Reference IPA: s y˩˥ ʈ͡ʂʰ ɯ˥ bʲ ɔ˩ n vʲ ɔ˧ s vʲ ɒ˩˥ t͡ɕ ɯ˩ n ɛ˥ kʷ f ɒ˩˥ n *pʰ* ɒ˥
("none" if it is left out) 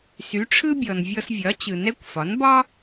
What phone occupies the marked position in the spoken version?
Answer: b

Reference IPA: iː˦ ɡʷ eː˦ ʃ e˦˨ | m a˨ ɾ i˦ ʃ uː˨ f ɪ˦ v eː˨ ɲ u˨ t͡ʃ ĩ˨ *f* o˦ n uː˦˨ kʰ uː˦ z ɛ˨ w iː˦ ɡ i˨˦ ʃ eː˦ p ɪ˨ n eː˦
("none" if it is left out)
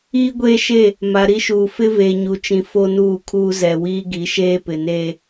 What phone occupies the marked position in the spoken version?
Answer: f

